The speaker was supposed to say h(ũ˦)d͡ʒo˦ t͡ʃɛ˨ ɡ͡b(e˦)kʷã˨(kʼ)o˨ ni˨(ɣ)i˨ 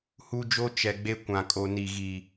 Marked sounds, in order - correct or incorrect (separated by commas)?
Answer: incorrect, correct, correct, correct